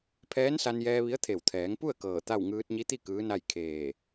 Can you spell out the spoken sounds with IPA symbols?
pʰ ɛː˧˥ n s a˧ n j ɛː˧ ʋ i˧˥ ə̯ t̪ʰ e˧˩ w t̪ʰ ɛː˩˧ ŋ p u˥˨ ə̯ k ɤː˧˩ t̪ a˥˨ w ŋ ɯː˧ t̚ ɲ i˧˥ t̪ i˥˨ k ɯː˧˥ n a˥˨ j kʰ eː˧˩

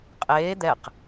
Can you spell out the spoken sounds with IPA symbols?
qʼ eː d̪ ɛ q

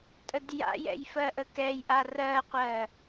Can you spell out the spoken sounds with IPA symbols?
tʼ ə d j a̰ j ɛ̰ j f ɜ ʔ ə k ɛ j ʔ a r ɜ qʷ ɜ

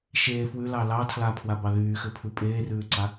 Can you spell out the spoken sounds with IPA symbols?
ʃ eː f w ʉ l ɑ l ɑ tʰ l a pʰ w a b ɑ ð yː x ɘ pʰ ʉ pʼ eː r ʉː ǀ a

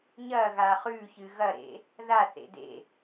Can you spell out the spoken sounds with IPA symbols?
ɲ ɐ ɣ a χ ʉ ç ɨ ɣ ɐ ɾ ḛ | ð a θ ḛ d ḛ

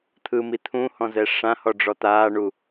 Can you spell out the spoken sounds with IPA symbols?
t̪ʰ ɯ m i t̪ʰ ũ h ɔ̃ z ɛ ʂ ã h ɔ ɖ͡ʐ ɔ t̪ aː ɳ u

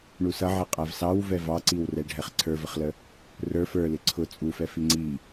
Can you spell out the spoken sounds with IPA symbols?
ɳ u s ʌ ʕ ɛ qʼ æ v s ɑ w v ɛ v ɑ ǀ i w r ɛ ɖʱ ɛ χ ǀʰ ə˞ v ə χ l ə | r ə˞ f ə˞ l ɪ ǀʰ ʊ t͡sʼ u f ɛ f i ŋ͡ǀ i

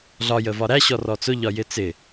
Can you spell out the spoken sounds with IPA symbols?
ɮ ɒ j ə v ɒ ɾ æ ɕ ɔ r ɔ t͡s ʊ ʎ ɒ j ɪ t͡s ɪ

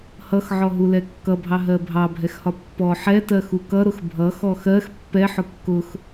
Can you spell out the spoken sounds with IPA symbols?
h ʌ x ʕ ɔ ɦ u l ɛ kː ʌ bʱ ɑ ɦ ɜ bʱ ɑ bʱ ɛ x h ɒ pː ɔ ħ ɛ t ɜ x u k ʌ ɾ ʊ x bʱ ʌ x ɔ x ɜ x pː ɛ ħ ʊ kː ʊ x

